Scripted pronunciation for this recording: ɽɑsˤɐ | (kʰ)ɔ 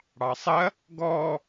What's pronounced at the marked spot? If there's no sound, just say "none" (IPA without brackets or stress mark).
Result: ɡ